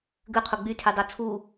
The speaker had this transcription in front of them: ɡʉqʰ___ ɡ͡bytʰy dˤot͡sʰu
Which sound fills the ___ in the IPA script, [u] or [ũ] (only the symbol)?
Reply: u